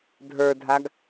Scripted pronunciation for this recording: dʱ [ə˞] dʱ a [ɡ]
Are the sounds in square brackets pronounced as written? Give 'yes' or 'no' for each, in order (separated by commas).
yes, yes